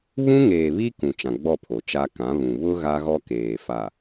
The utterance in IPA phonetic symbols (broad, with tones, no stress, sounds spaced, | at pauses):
β ũ˦ ŋ eː˨ β i˦ k ũ˨ t͡ʃ ã˨ ɡ͡b ɔ˦˨ pʰ o˨ t͡ʃ a˦ k ã˨˦ β ũ˨ β ʊ˦ ɣ a˦ ɣ ɔ˦ k eː˨ f a˨